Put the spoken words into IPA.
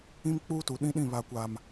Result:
ĩ˦mk͡puː˦tu˨ ɗĩ˦ɗĩ˦˨βa˨kʷaː˨m

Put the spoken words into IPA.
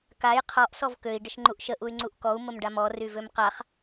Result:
kaj qʰɔʔ sɔvkøi̯ ɖəʃŋ͡ǃuʔʃə ʔuy̯ŋ͡ǀuʔkɔu̯ məmɖamɔ ryvømqaχ

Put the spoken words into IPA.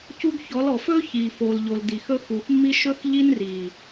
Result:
cu˦ɡ çɔ˨˦lɔ˨fɵː˦ çiː˨ foː˨lʎo˨l di˨xɵ˦ xu˨xmːi˦ ʃɵ˦xʎi˦nriː˨

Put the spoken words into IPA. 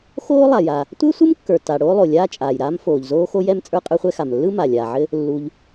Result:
xoː˥ lˠa˩ja˩ | tʷɘː˥sʷɯ˥mkːə˞˩ta˩ ɽoː˥lˠo˩ lʲaː˥t͡ʃʼaː˩jɾaː˥m foː˩ʎzoː˥xo˥jɛ˥m t͡sʼə˞˥qʼə˞˥χʷɛ˥xa˩m lːɯ˥ma˩ lʲaː˩ʕɘ˥ | lːu˩ʎ

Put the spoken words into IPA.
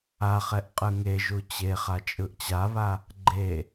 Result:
aχɛʔ qʼɯŋeʒu t͡ɕeχa t͡ʃʼɯʔt͡ɕaβa | ɡ͡ǃe

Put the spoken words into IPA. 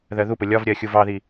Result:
ðɜðupʊ lʲɒvɾʲɜ xʲuvɑði

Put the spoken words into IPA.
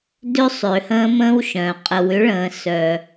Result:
dø˦sˤø˨hə̃ː˦mə̃ː˦w ʃœ̃˨ qʼə˨wʏ˦ɭə̃ː˨ sœ˦

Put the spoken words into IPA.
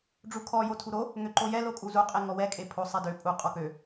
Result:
ɖ͡ʐukʰɔ jotʰuɾo | ŋøǃojɛ lokʼuzu qʼeŋɔwɛ kʼepʰo sˤedø pʼu qʼɔkø

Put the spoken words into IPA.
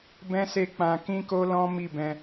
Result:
bɛ̃˦se˦˨k͡pã˧ kĩ˦ko˦lɔ̃˦ mi˦˨bɛ̃˧

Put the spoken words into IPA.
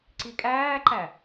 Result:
ǀikʼæːǃæ

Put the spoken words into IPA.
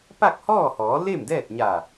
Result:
pa˥˨k̚hɔː˥˨hɔː˩˧ le˥˨mdɛː˥˨t̚ɲa˧˩

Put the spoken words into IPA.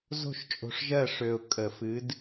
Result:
zo̤˦˨ʃt͡ʃʼo̤˨ʂʒɜ˦˨ ʂø˨ʊ̯ kʼə˨˩˦fɨ˨˦d

